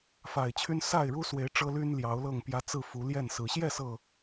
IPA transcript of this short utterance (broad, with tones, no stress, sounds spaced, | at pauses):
f a˨˩ ɪ̯ t͡ɕʰ y˦ n s a˥˨ ɪ̯ ɻ u˦ s w e˨˦ ɪ̯ ʈ͡ʂ ɤ˦ l y˦ n l j ɑ˨˦ ʊ̯ l ɤ˥˨ ŋ p j ä˦ t͡s ɹ̩˥˨ f u˨˦ l j ɛ˥˨ n s ɹ̩˨˦ ɕ j ɛ˥˨ s ɤ˨˩